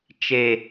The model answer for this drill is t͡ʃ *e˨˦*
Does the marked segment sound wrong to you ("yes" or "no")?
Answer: yes